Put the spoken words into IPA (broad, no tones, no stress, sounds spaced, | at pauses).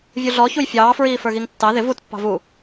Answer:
vʲ u ɮ ɔ ç u j fʲ ɑː f ɹ iː f ə˞ ɣ i ŋ tː ɑ ð ɪ v u t pː ɑ̤ v u